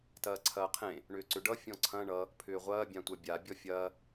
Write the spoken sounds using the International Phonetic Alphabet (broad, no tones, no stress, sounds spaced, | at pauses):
t ɐː ǀʰ ɐː qʰ ẽ | ɳ ʏː ǀ ʏ ɖ ʌ fʲ ɔ̃ ǀʰ ɐ̃ ɳ ʌ | pʰ ʏː ʁʷ ɐː bʲ ã tʷ ɐ bʲ a bʲ ɔ fʲ ɐː